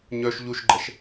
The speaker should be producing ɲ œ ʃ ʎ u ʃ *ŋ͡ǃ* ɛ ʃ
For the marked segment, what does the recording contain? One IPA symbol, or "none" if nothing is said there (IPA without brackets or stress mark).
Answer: ɡ͡ǃ